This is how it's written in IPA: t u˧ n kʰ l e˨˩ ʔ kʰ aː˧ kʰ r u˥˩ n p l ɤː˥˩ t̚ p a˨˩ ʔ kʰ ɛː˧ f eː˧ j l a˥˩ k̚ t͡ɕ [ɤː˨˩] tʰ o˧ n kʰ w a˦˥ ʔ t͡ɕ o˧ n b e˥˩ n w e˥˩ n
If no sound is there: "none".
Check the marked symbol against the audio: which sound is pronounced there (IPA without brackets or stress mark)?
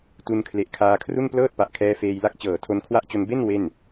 ɤː˨˩